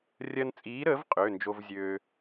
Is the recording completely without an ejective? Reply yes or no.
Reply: no